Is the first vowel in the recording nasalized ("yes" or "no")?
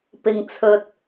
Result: no